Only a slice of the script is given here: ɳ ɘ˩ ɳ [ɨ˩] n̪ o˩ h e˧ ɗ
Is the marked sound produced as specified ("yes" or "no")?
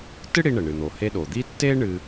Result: yes